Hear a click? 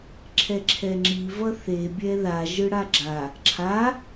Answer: yes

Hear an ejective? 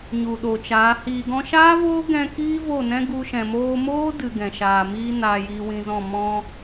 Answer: no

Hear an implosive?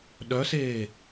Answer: yes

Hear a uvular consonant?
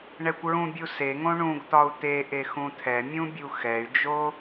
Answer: no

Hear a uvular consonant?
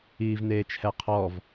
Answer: yes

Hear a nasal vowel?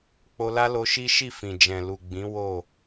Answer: yes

